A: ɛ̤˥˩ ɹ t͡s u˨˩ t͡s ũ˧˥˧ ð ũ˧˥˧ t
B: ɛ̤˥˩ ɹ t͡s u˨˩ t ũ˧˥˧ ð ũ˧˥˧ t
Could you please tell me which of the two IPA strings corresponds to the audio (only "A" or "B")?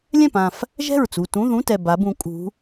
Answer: B